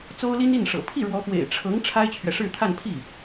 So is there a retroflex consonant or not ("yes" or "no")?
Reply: yes